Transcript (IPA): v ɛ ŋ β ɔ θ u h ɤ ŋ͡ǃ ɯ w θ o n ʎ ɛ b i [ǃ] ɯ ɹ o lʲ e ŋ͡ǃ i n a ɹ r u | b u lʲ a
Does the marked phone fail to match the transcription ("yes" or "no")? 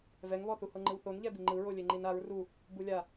yes